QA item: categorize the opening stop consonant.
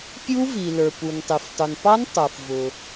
plain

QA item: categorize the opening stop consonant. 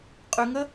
ejective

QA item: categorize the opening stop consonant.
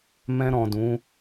plain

